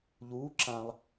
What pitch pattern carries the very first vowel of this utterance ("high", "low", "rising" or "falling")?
rising